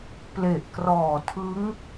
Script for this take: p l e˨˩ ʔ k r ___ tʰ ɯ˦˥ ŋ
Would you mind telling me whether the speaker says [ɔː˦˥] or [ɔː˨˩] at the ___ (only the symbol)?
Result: ɔː˨˩